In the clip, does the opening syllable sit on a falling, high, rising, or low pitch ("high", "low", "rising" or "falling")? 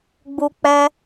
high